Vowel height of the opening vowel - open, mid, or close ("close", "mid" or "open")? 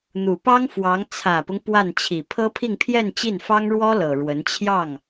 close